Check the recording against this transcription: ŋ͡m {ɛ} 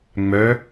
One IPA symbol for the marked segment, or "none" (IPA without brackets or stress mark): œ